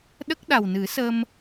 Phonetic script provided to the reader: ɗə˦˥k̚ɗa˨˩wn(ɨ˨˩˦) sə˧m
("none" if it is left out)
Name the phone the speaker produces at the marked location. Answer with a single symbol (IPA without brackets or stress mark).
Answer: ɨ˨˩˦